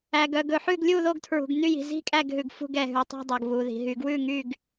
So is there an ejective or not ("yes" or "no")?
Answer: yes